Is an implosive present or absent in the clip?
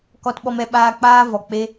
present